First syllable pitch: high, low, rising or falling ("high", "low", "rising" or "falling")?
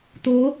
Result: rising